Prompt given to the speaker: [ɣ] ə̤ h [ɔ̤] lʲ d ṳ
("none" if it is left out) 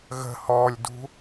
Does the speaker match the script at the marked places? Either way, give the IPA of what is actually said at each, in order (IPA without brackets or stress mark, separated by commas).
ɣ, ɔ